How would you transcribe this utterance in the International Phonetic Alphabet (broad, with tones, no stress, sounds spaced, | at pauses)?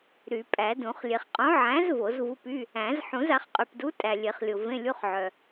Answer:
ɾ y˨˩˦ pʼ æ˨˩˦ d ũ˨˩˦ χ lʲ e˨ χ qʼ õ˨˥ ʕ æ̃˨˥ z v o˨˩˦ z v u˧˥˧ p y˧˥˧ | æ̃˨˩˦ z ħ ũ˨˩˦ z a˨˩˦ χ qʼ y˨ p d u˨˥ tʼ æ˨ lʲ e˨˩˦ χ lʲ o˨ v ẽ˧˥˧ lʲ u˧˥˧ χ ʕ œ˨